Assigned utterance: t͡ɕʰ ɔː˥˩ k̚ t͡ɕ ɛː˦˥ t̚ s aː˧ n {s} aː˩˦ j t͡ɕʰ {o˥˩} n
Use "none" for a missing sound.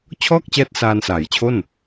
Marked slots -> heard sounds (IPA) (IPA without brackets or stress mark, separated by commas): s, o˥˩